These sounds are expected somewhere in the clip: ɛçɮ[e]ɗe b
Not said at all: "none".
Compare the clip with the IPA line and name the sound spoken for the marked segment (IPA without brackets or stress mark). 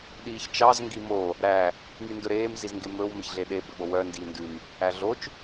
e